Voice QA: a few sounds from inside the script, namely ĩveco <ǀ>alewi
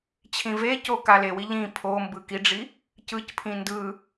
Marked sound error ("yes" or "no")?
yes